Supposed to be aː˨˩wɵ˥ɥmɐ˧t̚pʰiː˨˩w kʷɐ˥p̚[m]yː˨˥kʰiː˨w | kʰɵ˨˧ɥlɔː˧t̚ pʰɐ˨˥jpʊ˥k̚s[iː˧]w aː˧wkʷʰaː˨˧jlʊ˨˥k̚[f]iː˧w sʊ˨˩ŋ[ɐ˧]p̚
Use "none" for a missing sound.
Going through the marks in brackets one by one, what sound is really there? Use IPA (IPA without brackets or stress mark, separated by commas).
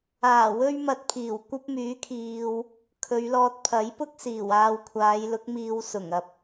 m, iː˨˩, m, ɐ˧